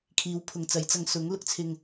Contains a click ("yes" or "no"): no